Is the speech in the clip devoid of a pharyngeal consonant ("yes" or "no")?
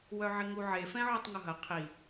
no